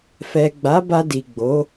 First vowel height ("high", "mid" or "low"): mid